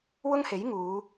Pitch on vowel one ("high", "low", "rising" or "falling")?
high